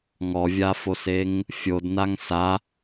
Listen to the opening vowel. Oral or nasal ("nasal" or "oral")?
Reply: oral